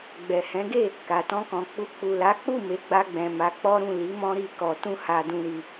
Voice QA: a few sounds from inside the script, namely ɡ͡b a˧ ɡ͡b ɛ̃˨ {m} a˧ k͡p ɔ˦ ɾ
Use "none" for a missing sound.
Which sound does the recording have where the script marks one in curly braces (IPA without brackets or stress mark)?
m